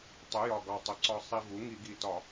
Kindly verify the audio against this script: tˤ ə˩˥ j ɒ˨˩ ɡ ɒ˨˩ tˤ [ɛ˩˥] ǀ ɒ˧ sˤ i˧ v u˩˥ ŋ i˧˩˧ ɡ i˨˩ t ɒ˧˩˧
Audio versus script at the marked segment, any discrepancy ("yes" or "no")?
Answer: yes